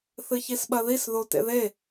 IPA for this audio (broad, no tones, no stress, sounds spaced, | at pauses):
θ ɨ ç i s ɓ ɐ ð i s ð o t ḛ ð e